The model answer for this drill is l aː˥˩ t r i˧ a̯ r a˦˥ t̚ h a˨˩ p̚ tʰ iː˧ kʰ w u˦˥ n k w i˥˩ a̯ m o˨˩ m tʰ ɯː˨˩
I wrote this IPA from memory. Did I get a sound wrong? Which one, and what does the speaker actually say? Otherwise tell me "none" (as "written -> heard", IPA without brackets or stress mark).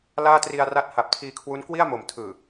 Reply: none